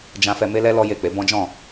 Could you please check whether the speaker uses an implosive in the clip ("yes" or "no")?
no